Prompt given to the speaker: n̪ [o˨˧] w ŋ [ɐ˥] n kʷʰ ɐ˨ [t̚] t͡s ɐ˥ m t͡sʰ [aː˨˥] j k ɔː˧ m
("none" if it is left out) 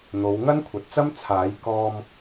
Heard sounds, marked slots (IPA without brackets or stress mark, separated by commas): o˨˧, ɐ˥, t̚, aː˨˥